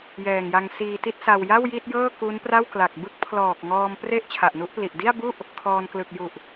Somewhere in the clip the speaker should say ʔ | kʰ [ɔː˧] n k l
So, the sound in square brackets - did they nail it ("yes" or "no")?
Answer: yes